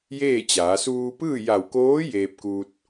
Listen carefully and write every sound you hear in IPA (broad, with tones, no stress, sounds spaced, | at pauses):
j eː˥˨ t͡ɕ aː˩˧ s uː˧ p ɯː˥˨ j a˧˩ w k oː˧˥ j eː˧ p̚ k u˧ t̚